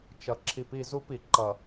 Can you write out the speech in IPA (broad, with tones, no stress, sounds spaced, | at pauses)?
t͡ʃ ʌ˨ ǁʰ i˨ p i˦˨ z u˦ p i˨ ǃ ʌ˨